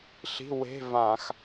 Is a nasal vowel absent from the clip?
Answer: no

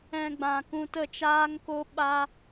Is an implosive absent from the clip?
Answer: no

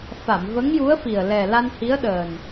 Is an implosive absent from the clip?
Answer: no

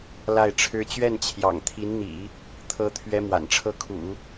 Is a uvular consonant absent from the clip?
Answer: yes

